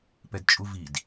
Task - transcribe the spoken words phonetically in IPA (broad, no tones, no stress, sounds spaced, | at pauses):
p ɛ d t͡ʃʼ u v i d